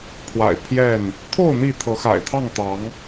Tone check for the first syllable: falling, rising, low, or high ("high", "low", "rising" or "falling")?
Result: low